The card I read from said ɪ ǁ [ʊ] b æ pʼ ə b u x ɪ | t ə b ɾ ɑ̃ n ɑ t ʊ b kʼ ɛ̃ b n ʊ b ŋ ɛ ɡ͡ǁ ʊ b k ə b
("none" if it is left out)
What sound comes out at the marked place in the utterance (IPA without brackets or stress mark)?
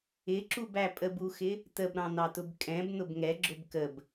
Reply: u